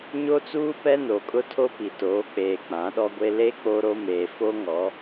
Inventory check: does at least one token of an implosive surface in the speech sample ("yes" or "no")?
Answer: yes